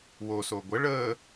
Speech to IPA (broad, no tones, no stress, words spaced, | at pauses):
woso ɡʷə ɭəː